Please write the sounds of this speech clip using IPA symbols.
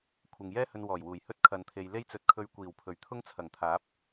kʷʰ ɪ˧ ŋ j ɛː˥ h ɵ˧ n w ɔː˨˩ j w uː˨˩ j h ɵ˥ t̚ kʰ ɐ˧ n t̪ʰ e˧ j l e˥ j t͡s ɵ˧ t̚ kʰ ɵ˧ ɥ kʷ iː˨˩ w pʰ ɵ˨˩ ɥ t̪ʰ ʊ˥ ŋ t͡sʰ ɐ˨˩ ŋ t̪ʰ aː˨˥ p̚

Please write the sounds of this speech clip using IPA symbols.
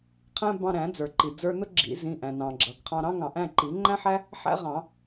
qʰ æ̃˥ b ɑ̃˧ ɾ æ̃˨˩˦ d͡z ə˞˩ ǃ i˩ d͡z ə˞˧ n ʊ˥ ɡ͡ǁ ḭ˨˩˦ z ĩ˩˧˩ ʔ æ̃˩ n ɑ̃˩ ɡ͡ǁ ʌ˩ ɡ qʰ ɑ̃˧ ɾ ɑ̃˥ ŋ ɑ̃˨˩˦ ʔ æ̃˩˧˩ ǃ i˨˩˦ ŋ͡ǃ æ̃˥ ħ æ˥ | ħ æ̰˥ ʁ ɑ̃˨˩˦

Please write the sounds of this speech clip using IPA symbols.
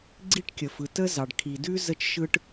ɡ͡ǀ i˥ ʈ kʲ ə˩ f ɯ˩ t ə˥ z ɑ˩ ɖ kʰ i˩ d ʉ˥ z ə˥ t͡ʃ ʃ ɯ˥ ʈ

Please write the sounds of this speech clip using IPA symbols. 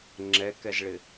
ŋ͡ǁ ɛ k ɛ z ɭ ɪ

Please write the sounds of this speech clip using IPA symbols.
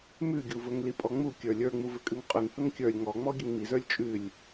m ʉ ɡʲ u v ɵ ŋ l i pʼ ɔ ŋ͡m u kʲ ə˞ lʲ ə˞ ŋ͡m u v ɘ kʼ ʉ ŋ qʼ ʉ ŋ h ɵ ŋ kʲ ə˞ lʲ ŋ ɔ ŋ͡m ɔ ɡʲ ɘ ŋ m i z ə˞ lʲ t͡ʃʼ ʉ lʲ

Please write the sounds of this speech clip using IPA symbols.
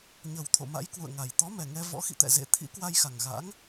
ɲ ə˨˩ w t̪ʰ o̰˧˨ m a̰˧˥ j k w ṵ˧˨ ə̯ ŋ a˨˩ j t̪ ɔ˨˦ m ɛ˨˩ ŋ ɛ˧ v ɔ̰˧˥ x ḭ˧˨ t̪ ɛ̰˧˨ z ḛ˧˨ t̪ʰ ḭ˧˥ k w a˧ j x a˨˩ ŋ ɣ a̰˧˥ ŋ

